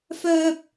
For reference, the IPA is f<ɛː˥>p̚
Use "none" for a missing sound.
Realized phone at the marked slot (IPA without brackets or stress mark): œː˥